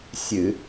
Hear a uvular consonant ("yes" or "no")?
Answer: no